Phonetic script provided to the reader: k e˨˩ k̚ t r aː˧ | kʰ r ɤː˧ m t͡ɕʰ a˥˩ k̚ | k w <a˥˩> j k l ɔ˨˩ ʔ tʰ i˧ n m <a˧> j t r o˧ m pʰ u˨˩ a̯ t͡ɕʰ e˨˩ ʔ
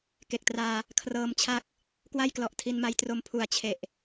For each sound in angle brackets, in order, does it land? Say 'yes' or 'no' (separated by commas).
yes, yes